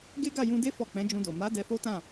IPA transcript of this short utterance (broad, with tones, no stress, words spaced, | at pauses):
ɡe˦ɡa˦˨jũ˧de˦ fɔ˦˨ k͡pɛ̃˨˦d͡ʒũ˧do˨ ma˨˦ dɛ˧fo˦tã˦˨